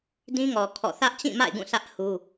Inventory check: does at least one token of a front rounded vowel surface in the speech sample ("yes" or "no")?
no